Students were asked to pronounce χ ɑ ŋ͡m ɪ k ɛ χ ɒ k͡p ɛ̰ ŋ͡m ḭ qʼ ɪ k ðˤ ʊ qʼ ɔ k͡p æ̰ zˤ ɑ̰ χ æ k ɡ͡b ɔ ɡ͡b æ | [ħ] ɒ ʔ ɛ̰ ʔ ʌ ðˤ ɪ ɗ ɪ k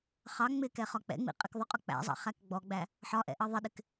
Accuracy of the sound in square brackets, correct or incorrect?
correct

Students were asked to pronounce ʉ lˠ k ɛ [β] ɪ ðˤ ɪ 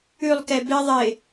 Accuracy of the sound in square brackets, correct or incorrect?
incorrect: b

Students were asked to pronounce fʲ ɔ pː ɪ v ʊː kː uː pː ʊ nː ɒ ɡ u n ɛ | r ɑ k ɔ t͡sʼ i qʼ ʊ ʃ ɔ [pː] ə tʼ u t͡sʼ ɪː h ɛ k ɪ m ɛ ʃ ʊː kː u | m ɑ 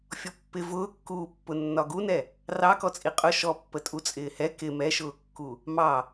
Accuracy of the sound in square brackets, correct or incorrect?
correct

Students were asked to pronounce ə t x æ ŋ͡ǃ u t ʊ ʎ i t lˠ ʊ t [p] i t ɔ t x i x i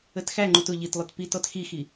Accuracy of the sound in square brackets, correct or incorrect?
correct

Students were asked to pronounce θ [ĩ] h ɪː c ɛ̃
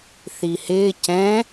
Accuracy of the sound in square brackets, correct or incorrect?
incorrect: i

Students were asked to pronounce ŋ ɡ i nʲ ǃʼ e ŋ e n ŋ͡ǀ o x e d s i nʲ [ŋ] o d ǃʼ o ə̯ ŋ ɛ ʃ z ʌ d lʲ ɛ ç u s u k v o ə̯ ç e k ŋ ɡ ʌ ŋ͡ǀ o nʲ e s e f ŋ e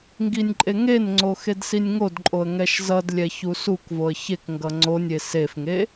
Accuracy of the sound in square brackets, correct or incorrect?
correct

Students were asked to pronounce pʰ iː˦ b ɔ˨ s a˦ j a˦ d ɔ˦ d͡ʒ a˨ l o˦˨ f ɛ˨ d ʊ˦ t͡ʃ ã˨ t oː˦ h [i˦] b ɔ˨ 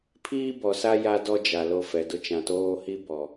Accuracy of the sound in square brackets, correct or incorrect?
correct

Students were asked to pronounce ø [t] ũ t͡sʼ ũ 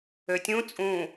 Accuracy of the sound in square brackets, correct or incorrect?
incorrect: tʲ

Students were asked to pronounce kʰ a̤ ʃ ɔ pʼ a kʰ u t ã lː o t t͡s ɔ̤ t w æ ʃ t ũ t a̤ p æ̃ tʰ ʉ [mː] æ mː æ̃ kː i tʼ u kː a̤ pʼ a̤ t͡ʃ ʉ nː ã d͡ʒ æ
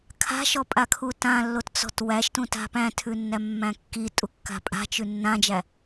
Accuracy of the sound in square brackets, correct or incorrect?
incorrect: nː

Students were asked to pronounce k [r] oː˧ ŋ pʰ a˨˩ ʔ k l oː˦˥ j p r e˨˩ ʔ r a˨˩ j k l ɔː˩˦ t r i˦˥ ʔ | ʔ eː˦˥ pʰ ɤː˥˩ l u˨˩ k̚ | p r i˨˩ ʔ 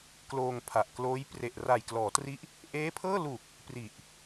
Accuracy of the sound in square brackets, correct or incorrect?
incorrect: l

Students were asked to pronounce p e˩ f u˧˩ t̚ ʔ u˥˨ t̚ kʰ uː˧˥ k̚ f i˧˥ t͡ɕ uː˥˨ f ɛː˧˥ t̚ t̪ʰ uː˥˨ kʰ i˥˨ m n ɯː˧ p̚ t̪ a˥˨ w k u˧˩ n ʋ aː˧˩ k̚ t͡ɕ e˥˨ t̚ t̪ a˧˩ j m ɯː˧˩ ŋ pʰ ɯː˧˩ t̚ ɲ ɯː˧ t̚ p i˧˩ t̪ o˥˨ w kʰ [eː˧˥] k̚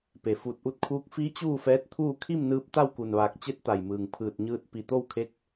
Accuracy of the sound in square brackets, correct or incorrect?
incorrect: e˧˥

